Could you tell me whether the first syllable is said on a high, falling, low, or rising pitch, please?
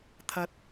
rising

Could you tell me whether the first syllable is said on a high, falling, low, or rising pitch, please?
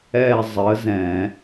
falling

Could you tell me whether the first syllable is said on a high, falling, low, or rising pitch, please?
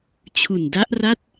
low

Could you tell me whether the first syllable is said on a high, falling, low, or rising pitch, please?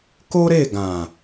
high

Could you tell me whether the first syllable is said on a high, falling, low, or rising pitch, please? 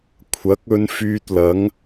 rising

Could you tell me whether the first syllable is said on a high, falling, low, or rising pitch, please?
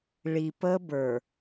low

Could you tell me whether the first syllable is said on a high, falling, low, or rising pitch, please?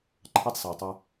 high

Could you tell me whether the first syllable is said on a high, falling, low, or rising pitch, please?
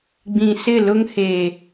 low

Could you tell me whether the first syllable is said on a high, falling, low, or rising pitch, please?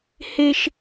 high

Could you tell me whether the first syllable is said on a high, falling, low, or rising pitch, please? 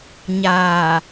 low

